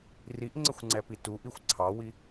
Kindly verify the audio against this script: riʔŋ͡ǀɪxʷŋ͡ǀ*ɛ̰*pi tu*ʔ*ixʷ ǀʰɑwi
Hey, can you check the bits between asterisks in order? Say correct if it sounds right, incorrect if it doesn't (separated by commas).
incorrect, correct